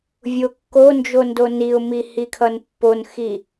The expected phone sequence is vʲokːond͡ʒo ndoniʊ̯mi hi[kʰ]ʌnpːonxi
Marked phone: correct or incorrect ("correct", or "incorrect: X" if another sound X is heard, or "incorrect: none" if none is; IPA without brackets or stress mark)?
correct